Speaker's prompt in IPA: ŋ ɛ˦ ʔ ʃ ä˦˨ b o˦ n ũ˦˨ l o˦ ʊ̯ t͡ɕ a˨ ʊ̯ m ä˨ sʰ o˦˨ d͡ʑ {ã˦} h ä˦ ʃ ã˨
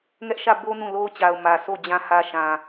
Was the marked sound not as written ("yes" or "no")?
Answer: yes